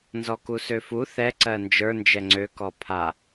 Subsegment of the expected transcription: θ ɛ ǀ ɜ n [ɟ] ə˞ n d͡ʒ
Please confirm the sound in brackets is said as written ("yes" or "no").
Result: no